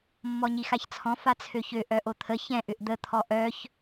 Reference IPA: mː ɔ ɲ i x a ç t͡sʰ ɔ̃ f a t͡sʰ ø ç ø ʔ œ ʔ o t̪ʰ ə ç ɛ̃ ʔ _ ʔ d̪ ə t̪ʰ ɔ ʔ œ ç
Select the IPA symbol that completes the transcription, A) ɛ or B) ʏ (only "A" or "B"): B